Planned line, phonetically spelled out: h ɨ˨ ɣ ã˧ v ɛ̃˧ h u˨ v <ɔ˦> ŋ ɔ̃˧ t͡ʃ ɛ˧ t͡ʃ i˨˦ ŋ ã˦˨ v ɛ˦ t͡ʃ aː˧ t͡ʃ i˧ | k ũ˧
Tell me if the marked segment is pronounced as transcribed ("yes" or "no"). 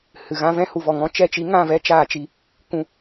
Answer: no